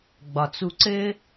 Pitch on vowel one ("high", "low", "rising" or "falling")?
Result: low